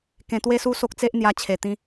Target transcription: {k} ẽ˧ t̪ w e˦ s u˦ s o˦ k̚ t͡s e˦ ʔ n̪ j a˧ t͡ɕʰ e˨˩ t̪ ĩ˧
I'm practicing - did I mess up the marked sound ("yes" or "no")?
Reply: no